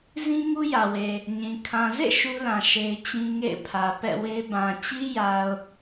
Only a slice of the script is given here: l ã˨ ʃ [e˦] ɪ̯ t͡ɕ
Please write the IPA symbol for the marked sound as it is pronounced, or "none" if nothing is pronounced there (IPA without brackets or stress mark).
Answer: e˦